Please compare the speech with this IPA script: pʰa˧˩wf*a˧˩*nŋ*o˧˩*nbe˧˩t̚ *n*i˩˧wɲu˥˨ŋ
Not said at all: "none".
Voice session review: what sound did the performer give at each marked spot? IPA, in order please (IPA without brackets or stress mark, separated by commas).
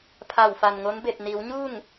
a˩, o˧˥, n